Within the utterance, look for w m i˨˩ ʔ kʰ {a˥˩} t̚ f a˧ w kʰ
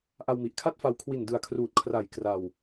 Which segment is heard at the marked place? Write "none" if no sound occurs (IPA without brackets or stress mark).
a˥˩